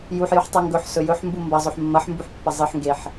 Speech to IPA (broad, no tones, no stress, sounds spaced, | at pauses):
j u ħ j ʉ ħ tˤ ʉ ŋ ɡ ɵ ħ s ɵ j ɵ ħ m b u m b ɐ zˤ ɵ ħ mː ɐ ħ m b u ħ pː ɐ zˤ ɨ ħ ŋ ɡ e ħ